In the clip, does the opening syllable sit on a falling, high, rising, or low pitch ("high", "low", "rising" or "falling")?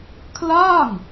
falling